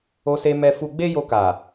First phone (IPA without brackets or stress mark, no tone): o